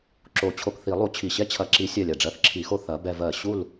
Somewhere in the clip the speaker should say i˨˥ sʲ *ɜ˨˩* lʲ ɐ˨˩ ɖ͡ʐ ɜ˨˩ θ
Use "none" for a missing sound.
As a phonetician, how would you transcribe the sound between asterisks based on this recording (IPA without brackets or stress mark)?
ɜ˨˩